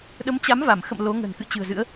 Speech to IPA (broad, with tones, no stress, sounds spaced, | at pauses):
ɗ ə˨˦ m t͡ɕ a˨˦ m v a˧˩ m x ə̰˧˨ m l o˨˦ ŋ ə̤˨˩ n k ɨ̰˧˨ t͡ɕ ɨ̤˨˩ ə̯ z ɨ̰˧˥ ə̯